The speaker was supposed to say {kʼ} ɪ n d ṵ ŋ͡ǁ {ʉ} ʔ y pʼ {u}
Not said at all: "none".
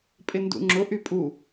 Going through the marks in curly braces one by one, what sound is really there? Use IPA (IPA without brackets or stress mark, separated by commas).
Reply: pʼ, ʊ, u